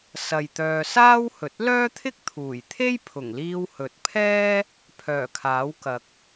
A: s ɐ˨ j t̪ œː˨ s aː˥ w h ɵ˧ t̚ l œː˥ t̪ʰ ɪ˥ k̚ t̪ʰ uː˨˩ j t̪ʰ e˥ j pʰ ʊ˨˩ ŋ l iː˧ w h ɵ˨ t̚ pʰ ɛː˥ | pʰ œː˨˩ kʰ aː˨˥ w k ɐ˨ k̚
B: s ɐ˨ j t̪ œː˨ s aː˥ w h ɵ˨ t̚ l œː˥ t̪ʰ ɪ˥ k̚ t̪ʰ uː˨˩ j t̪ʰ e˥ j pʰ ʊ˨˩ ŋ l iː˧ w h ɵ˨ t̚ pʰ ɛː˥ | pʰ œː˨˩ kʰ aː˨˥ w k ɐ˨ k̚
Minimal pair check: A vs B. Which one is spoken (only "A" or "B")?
B